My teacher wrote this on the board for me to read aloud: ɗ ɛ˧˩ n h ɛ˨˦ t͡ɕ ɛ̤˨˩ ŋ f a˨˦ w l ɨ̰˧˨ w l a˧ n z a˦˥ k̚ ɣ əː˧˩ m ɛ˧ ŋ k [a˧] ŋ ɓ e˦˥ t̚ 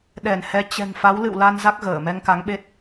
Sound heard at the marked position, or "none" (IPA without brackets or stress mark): a˨˦